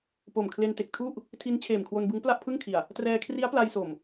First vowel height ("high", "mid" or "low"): mid